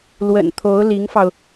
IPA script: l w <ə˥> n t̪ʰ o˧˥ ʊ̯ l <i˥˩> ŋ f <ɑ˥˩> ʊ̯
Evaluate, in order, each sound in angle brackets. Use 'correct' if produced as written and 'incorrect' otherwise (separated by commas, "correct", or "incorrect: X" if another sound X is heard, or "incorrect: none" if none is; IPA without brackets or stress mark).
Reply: incorrect: ə̰˨˩, incorrect: i˧˥, incorrect: ɑ˧